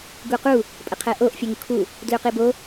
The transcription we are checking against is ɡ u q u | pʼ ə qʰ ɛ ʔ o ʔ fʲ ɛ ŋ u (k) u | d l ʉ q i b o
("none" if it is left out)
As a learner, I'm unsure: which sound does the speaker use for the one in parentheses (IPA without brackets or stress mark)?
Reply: kʰ